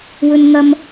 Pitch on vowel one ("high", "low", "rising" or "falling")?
high